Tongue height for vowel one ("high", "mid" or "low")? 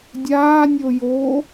low